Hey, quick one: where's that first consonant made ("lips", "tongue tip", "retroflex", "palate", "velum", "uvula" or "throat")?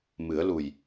lips